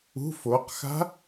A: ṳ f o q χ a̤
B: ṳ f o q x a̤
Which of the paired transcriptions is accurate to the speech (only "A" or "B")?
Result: B